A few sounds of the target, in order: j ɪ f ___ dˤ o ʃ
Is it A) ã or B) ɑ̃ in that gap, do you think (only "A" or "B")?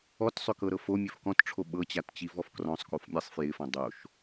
A